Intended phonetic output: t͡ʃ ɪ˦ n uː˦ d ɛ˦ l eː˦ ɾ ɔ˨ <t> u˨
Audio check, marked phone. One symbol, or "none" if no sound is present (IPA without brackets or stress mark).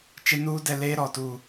t